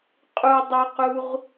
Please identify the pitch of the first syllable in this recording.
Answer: low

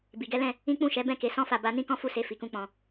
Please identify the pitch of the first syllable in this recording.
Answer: low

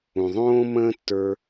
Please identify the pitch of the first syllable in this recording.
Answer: low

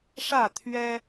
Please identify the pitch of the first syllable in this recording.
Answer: falling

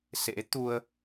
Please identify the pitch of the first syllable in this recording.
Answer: rising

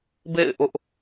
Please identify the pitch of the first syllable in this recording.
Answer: falling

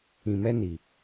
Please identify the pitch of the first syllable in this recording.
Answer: low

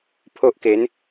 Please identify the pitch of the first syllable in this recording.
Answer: high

